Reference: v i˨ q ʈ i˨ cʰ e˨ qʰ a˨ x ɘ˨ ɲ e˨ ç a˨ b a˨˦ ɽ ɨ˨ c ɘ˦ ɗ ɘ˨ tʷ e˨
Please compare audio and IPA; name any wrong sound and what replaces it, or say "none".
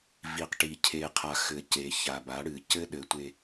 ɲ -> c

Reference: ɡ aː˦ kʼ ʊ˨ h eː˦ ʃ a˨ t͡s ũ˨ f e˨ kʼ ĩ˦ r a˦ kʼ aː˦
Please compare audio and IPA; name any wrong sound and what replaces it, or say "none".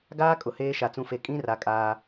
none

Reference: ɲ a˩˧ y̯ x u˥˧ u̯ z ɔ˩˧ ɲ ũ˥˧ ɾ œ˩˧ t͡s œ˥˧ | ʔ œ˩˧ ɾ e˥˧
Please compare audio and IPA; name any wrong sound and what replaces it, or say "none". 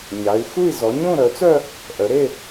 u̯ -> i̯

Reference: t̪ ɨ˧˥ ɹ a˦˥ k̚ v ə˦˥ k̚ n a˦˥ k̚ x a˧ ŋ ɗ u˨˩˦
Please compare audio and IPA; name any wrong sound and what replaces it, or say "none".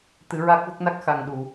none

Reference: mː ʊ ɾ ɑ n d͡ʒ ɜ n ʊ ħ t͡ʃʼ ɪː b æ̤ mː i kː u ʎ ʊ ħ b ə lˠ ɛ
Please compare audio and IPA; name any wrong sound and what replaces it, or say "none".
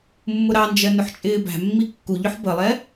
none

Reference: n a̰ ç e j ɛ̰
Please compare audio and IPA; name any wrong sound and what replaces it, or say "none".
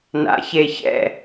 j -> ç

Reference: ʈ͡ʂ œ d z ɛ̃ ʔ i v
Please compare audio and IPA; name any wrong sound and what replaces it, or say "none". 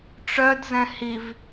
ʔ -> h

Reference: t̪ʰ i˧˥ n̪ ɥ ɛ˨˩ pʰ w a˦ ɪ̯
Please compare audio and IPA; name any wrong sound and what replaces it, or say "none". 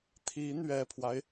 none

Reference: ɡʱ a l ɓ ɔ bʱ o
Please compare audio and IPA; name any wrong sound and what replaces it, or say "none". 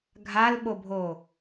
ɔ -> o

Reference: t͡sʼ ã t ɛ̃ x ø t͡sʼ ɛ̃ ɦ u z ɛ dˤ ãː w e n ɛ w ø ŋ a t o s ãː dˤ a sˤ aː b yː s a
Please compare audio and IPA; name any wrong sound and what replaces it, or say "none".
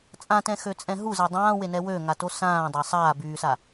none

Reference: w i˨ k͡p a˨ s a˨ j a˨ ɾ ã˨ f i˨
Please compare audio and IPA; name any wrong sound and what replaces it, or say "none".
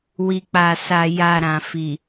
none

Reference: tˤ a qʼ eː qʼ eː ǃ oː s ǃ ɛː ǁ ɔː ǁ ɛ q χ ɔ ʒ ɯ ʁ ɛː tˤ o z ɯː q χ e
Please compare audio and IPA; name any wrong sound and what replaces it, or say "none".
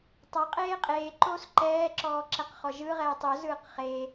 none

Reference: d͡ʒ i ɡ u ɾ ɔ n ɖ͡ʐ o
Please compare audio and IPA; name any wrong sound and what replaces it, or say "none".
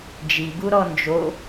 ɖ͡ʐ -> d͡ʒ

